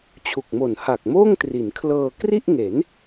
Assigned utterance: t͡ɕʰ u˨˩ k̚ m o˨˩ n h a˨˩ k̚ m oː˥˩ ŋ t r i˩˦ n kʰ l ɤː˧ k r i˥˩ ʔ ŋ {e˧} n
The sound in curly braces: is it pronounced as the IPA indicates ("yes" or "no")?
no